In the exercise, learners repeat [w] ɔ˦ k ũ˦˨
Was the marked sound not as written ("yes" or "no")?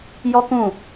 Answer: yes